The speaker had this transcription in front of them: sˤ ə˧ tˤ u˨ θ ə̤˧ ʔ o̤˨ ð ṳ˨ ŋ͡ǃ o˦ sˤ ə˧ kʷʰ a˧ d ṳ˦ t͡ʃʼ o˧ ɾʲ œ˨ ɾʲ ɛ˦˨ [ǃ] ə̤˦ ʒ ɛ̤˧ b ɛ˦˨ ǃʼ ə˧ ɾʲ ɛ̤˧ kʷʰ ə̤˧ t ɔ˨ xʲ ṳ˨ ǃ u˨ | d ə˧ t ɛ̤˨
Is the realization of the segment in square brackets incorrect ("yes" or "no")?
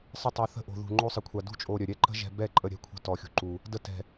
no